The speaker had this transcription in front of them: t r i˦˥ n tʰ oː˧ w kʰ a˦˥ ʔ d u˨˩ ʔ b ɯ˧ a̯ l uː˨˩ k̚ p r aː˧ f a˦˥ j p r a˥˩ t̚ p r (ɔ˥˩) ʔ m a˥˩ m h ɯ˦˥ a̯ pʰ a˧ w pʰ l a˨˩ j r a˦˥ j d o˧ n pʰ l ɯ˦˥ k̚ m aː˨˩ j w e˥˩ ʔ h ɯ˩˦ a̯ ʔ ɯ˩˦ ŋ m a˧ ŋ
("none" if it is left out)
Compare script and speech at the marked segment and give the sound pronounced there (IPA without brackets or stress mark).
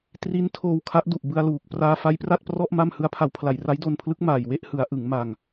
ɔ˥˩